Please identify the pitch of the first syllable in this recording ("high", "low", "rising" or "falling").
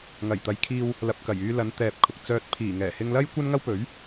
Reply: low